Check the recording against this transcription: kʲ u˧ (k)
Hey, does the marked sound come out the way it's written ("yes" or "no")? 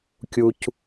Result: no